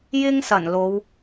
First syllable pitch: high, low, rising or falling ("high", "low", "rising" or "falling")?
high